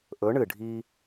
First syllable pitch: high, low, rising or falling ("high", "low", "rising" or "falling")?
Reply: rising